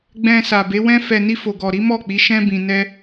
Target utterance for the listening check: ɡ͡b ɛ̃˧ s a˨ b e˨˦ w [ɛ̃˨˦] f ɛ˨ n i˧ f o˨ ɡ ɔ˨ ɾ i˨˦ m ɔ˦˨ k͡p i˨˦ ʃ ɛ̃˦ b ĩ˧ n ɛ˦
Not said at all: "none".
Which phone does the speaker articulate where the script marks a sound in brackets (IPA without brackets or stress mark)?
ɛ̃˧